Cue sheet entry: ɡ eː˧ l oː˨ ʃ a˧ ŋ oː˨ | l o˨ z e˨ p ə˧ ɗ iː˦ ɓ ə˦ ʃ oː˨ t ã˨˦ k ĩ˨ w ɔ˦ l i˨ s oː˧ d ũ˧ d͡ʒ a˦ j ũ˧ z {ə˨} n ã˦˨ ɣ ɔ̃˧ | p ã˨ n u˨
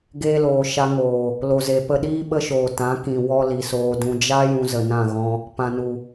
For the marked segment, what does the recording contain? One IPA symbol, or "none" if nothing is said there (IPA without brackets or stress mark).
ə˨